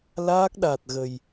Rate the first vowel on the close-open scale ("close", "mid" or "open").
open